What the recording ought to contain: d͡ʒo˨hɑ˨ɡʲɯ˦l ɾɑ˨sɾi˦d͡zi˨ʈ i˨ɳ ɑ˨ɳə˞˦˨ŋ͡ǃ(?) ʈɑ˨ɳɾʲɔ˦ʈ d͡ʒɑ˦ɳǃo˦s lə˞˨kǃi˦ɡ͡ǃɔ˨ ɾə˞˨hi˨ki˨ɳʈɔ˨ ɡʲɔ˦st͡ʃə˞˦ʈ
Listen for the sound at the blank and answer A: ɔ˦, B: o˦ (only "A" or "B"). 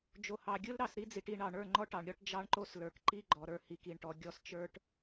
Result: A